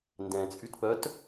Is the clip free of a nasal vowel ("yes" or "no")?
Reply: no